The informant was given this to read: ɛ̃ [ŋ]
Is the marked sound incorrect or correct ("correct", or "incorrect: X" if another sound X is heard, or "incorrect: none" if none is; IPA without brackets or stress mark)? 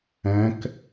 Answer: incorrect: k